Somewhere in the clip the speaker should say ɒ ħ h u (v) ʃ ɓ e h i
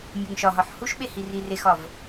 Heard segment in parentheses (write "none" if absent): none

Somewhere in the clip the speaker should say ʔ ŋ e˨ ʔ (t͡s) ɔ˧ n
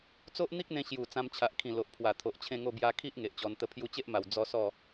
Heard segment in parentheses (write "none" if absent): t͡ɕ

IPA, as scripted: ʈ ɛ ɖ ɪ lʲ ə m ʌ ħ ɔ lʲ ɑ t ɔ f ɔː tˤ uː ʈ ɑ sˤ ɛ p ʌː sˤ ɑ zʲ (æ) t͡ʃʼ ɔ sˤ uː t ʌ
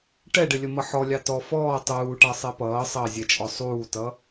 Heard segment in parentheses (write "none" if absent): ɛ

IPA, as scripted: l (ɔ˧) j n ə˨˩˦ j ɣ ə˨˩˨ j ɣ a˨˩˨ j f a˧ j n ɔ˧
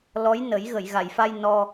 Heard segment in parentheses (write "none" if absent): ɔ˧˥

